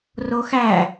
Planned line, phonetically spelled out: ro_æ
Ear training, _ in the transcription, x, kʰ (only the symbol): x